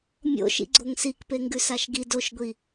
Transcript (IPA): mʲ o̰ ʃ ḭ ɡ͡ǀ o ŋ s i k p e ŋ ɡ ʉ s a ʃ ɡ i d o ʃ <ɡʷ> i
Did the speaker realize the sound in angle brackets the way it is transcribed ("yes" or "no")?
yes